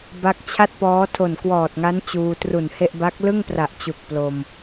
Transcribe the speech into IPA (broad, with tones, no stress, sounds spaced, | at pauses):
b a˦˥ k̚ t͡ɕʰ a˥˩ t̚ p ɔː˦˥ tʰ o˨˩ n k w ɔː˨˩ t̚ ŋ a˦˥ n t͡ɕ uː˧ t r u˨˩ n h e˥˩ ʔ b a˦˥ k̚ l ɯ˥˩ ŋ p r a˨˩ ʔ t͡ɕ u˨˩ k̚ p l o˧ m